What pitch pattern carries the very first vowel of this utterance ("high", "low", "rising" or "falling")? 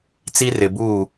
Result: high